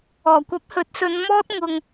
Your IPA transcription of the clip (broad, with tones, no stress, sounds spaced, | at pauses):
ɔː˨˩ kʷ ɐ˨˥ p̚ h ɵ˨ t̚ s ɵ˨˧ n m ɔː˥ t̚ ŋ ʊ˧ ŋ